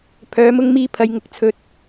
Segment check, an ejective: absent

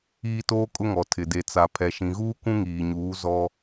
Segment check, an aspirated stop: present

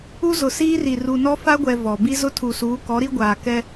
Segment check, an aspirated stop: present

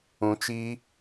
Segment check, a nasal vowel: present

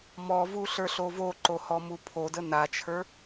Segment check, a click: present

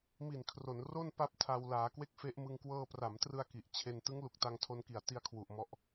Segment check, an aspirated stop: present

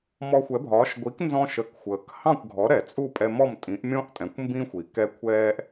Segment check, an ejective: present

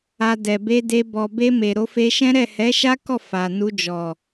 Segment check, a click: absent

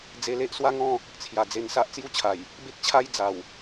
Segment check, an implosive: absent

